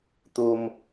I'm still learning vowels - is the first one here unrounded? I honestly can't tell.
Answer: no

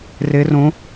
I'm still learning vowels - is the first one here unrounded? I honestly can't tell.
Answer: yes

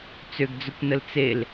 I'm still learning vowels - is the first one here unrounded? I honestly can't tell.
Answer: no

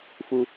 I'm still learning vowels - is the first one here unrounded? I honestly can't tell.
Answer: no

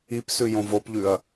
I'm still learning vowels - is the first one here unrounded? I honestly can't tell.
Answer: yes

